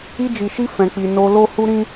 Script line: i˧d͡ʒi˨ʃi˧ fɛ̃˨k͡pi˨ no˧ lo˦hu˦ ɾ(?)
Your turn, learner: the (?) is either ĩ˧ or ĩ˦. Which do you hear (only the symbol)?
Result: ĩ˦